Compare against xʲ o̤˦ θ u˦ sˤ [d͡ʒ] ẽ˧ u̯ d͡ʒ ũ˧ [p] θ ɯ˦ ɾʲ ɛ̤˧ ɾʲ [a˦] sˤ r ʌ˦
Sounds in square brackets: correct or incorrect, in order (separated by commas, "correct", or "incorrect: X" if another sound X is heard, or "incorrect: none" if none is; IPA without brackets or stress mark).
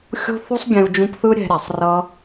incorrect: ɡʲ, correct, incorrect: a˨